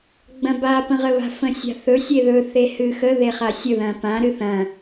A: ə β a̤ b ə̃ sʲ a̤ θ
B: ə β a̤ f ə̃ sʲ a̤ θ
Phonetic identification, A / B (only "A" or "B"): B